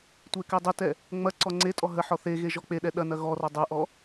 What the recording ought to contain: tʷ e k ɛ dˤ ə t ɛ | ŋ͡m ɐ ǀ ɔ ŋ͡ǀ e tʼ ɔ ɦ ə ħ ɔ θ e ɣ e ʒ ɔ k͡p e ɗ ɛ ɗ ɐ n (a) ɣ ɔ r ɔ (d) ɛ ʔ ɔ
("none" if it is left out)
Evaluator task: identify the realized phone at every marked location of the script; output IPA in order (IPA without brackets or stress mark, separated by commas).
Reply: ɐ, dˤ